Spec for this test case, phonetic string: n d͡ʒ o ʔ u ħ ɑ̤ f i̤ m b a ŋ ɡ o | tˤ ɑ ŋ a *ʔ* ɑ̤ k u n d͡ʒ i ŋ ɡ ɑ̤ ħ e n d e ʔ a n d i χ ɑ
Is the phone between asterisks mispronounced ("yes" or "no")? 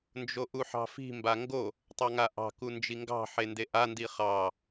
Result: no